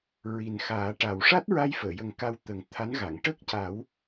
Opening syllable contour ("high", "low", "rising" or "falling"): low